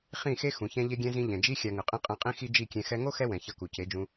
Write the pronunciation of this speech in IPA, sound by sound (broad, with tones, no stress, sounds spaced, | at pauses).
χ ĩ˦˨ x e˦ x ũ˨ ç ɛ̃˧ ʎ e˧ ɡʲ ɛ̃˧ z ĩ˧ ʎ ɛ̃˨ d͡ʒ i˦ xʲ a˧ ŋ ɯ˨ qʼ ĩ˦ qʼ ɛ̃˧ qʼ ĩ˦ x i˦ d͡ʒ i˦˨ kʲ ɛ̃˧ x ɛ˧ ŋ o˦ x ɛ˦ w ɛ̃˨ ç ʌ˧ k u˨ c e˨˦ d͡ʒ ũ˧